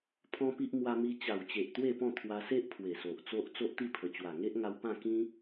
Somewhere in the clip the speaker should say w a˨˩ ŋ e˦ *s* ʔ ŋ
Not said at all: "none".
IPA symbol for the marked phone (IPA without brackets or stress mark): none